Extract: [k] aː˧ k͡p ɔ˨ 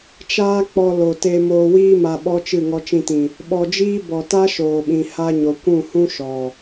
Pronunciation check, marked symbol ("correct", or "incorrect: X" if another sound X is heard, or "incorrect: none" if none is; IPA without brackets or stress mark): incorrect: t͡ʃ